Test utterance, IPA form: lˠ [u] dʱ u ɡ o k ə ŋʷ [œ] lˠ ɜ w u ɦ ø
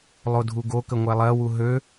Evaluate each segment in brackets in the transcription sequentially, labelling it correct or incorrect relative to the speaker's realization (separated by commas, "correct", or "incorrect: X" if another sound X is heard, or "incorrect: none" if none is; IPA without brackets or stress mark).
incorrect: o, incorrect: ɛ